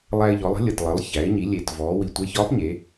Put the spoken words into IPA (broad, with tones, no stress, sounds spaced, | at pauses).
lˠ æ˧ ɪ̯ ʎ ɔ˩˧ lˠ ə̤˧˥ lʲ ə˩ t lˠ ə˩˧ lˠ ç æ˩˧ ɪ̯ ɲ i˩˧ lʲ e˩ t v ɔː˩˧ w i˩ tʷ ə˧ ɪ̯ ç ɒː˧˥ p ɲ e˩˧